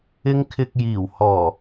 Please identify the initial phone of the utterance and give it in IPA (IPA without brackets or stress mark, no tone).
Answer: ɪ